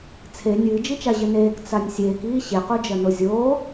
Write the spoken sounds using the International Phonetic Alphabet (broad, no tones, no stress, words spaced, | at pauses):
t͡sʰe nʲɨːd͡ʒit͡ʃa ʑɘneːk t͡sanʲsʲeːkiː ɕequd͡ʒɐno zʲoː